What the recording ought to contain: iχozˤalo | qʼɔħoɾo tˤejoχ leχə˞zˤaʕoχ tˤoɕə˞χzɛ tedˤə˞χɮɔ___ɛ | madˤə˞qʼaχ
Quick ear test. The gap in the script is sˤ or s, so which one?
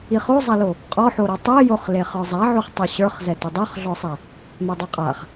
sˤ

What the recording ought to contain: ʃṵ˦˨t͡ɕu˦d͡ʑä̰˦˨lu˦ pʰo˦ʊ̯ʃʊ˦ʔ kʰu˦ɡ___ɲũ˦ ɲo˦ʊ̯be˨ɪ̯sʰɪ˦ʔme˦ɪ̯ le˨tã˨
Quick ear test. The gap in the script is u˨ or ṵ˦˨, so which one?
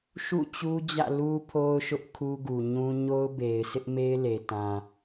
u˨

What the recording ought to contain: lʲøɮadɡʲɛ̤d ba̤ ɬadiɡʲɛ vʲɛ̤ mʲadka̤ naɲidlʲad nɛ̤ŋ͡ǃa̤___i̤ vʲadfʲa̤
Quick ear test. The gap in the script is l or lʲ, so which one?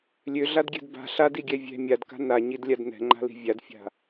l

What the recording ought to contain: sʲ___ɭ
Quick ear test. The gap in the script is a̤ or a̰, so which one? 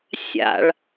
a̰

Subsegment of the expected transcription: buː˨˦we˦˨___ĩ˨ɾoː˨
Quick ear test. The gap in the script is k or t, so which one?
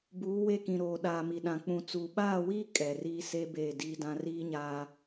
k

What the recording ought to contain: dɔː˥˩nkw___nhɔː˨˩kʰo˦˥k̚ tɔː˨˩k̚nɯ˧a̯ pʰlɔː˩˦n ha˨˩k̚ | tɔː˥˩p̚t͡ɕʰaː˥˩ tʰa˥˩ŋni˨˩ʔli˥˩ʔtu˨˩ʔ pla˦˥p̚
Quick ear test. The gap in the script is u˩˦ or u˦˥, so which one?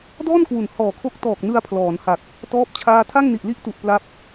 u˩˦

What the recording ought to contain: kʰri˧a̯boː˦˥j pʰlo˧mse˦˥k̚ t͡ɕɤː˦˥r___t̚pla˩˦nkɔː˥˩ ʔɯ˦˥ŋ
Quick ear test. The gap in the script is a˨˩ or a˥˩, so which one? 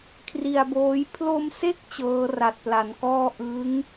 a˨˩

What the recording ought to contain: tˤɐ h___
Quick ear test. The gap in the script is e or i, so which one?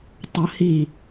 i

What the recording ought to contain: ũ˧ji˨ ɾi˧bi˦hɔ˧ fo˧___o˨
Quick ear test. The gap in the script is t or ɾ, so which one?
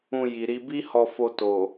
t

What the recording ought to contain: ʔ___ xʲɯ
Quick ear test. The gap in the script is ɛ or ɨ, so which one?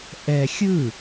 ɛ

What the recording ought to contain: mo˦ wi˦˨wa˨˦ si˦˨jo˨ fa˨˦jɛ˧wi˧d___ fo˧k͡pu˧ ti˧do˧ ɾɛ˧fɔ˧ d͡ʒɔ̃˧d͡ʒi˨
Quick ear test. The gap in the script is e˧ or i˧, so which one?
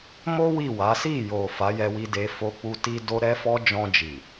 e˧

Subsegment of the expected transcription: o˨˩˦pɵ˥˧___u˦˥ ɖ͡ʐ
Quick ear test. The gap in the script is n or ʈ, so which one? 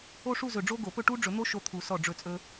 ʈ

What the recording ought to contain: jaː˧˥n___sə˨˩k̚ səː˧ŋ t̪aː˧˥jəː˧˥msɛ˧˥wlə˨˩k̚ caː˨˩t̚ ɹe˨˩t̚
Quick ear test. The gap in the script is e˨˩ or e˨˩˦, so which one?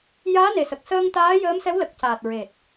e˨˩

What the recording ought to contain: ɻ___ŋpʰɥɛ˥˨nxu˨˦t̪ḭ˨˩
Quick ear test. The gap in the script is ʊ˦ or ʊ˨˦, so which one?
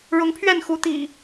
ʊ˨˦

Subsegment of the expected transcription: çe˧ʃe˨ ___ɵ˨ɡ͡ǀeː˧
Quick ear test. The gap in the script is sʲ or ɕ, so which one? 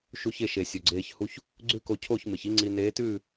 sʲ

